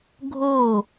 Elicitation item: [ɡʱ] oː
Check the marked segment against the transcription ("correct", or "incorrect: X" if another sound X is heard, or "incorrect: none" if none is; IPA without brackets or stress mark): correct